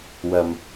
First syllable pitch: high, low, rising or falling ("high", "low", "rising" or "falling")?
low